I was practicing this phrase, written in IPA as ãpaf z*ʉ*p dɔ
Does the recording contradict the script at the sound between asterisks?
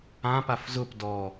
yes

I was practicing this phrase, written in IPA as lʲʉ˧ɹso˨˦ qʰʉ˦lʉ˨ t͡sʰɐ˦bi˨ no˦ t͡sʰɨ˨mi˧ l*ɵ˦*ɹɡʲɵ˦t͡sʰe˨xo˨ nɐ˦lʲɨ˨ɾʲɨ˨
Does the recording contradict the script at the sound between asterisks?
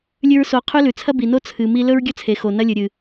no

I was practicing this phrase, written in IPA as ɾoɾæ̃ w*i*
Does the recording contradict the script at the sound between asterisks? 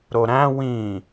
yes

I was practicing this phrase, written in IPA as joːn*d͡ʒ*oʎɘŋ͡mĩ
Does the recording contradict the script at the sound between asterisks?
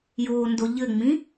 yes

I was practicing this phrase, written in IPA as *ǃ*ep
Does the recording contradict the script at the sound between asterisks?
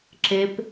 yes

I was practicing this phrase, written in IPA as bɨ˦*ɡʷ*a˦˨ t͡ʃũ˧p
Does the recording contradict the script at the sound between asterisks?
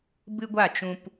no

